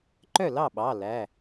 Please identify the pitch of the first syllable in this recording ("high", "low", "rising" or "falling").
falling